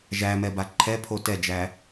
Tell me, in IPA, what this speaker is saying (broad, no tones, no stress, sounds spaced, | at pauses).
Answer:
ʒ æ m ɛ b a ǃʰ ɛ pʰ o t ɛ d͡ʒ æ